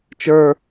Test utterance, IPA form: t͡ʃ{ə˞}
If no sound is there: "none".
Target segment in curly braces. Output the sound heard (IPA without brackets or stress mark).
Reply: ə˞